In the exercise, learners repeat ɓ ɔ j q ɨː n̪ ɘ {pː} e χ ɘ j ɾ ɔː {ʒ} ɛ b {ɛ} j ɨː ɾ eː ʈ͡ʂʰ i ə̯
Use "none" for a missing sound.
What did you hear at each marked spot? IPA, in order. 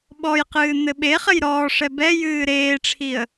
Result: ɓ, ʂ, ɛ

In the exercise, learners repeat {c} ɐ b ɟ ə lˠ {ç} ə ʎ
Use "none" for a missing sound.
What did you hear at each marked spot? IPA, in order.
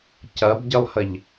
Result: c, h

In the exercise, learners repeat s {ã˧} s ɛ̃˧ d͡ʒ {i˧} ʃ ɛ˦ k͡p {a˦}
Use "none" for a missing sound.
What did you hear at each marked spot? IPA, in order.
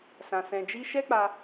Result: ã˧, i˦, a˧

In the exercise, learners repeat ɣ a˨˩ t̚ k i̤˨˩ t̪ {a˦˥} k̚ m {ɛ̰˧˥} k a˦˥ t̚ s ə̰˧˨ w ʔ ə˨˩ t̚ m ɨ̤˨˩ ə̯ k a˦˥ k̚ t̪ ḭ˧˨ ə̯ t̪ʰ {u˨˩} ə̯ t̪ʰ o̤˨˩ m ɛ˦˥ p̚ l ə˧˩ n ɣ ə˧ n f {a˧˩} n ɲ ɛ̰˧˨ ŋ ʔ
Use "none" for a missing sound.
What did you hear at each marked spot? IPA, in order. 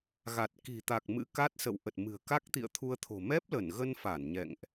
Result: a˨˩, ɨ̰˧˥, u˧, a˧˩

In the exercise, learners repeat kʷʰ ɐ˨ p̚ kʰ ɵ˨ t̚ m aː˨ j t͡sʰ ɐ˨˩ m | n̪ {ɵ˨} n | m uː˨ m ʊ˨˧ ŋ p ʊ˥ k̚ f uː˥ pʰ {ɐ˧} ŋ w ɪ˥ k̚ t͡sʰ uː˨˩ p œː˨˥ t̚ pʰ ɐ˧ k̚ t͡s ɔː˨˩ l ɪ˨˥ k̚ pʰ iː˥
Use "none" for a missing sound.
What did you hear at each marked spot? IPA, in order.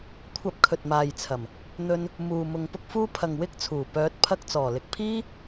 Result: ɵ˧, ɐ˨

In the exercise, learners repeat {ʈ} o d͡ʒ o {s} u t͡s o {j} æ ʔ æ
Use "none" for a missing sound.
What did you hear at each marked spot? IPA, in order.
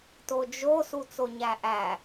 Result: t, s, ɲ

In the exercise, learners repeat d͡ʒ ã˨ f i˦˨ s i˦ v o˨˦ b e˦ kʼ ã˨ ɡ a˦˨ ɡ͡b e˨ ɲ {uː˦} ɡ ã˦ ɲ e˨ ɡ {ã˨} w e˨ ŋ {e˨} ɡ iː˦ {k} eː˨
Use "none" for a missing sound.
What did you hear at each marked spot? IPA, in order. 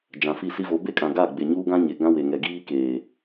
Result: uː˦, ã˦, ɛ˨, k

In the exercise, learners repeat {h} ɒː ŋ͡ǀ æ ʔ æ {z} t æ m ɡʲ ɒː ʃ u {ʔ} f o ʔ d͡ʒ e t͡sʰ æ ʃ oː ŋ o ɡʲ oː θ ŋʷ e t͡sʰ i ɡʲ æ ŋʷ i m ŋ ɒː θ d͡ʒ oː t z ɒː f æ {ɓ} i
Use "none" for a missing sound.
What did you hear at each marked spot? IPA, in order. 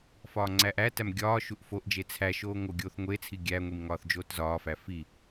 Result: f, none, ʔ, f

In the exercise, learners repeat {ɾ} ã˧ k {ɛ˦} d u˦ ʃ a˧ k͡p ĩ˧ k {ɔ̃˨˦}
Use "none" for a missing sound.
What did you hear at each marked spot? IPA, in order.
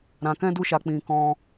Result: ɾ, ɛ̃˦, ɔ̃˧

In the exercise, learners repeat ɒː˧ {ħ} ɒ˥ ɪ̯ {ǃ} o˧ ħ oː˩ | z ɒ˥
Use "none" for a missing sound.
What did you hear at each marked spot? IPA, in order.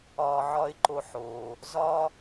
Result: ʕ, ǃ

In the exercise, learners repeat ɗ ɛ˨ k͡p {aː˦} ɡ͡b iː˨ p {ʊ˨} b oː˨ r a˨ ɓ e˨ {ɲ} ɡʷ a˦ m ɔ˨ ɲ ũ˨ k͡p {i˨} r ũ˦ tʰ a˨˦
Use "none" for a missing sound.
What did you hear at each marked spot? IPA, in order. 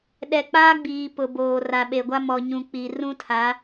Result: aː˦, ʊ˨, none, i˨

